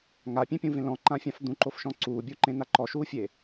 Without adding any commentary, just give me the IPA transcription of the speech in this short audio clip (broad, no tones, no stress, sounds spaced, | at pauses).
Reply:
ŋ a pʲ ẽ pʲ ũ v ẽ l ɔ̃ ǃ ã fʲ ã f d̪ ũ ǃ o f ʃ ɔ̃ ǀ uː bʲ u ǃ ẽ n a ǃ ɔ ʃ uː fʲ e